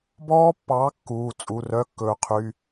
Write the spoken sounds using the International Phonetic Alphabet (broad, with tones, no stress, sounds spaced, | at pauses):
b ɔː˦˥ pː ɑː˨˥ kː uː˩˧˩ t͡sʼ u˩˧˩ r œ˧˥˧ kː ɵː˩ qʰ y˩˧˩